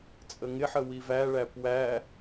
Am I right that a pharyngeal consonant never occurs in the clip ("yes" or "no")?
no